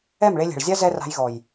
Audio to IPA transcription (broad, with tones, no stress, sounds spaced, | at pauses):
ɛ˦˨ m ɭ e˧ lʲ ɛ̤˨ ɭ zʲ a˦ z ɛ˦ r a̤˧ j ɣ ɔ˨ j